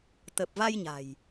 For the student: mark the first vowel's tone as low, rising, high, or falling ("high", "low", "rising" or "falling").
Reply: low